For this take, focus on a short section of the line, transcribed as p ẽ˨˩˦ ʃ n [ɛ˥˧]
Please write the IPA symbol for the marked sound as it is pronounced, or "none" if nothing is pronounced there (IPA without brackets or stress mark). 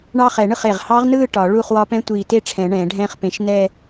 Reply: ɛ˥˧